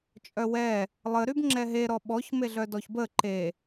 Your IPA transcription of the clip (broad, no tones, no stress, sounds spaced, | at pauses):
t͡ʃʼ œ w ɛ | lˠ ə ɾ y b ŋ͡ǁ ɛ ɦ e ɾ ɔ ɓ ɔ ç m e ɮ œ d ɔ ç b ə ǃ e